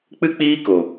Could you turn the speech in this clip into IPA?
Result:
k͡p ɨ˦ k͡p iː˦ k o˨

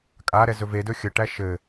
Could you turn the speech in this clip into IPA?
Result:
kʼ a ɾ ɛ z ɵ v e d ɵ xʲ ə ʈ æ ʃ ɘ

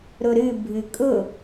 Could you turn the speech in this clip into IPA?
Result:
ɾ ʊ ɾ ɨ bʱ ɨ kʼ ʊ

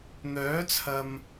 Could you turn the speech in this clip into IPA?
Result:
n̪ œː˨˥ t͡sʰ ɐ˨ m

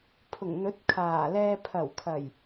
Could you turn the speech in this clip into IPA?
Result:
pʰ ʊ˨˩ ŋ n̪ ɵ˨˥ t̚ kʰ aː˨˩ l ɛː˧ pʰ ɐ˨˩ w kʰ ɐ˨˩ j

